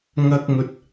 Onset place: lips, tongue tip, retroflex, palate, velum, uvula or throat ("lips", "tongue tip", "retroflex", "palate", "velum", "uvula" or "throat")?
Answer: velum